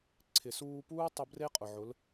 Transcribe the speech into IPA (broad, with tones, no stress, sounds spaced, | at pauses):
ǀʰ ɪ˨ s uː˧ p uː˦ tˤ ʊ˧ b r e˦ qʼ ʊ˨ ʕ ʊ˨˦ l